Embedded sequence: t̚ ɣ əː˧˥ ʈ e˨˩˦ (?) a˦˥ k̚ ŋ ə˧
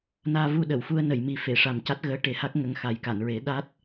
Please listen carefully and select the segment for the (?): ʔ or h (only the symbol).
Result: h